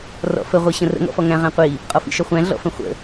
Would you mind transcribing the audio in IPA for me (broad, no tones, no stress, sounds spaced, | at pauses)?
r ɔ̰ f ə ʁʷ i ɕ ə̃ r ə̰ ŋ ɔ̰ f ɔ ŋ æ̃ ʁ æ̃ qʷ i | qʼ ɔ f ḭ ʃ ɒ χʷ æ̃ ɮ ɔ̰ f ə̃ χʷ ə̰